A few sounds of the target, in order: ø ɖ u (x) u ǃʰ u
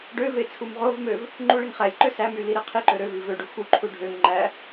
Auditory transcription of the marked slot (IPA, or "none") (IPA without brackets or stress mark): x